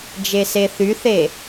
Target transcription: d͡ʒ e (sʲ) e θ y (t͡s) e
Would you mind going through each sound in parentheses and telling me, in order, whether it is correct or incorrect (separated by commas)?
incorrect, incorrect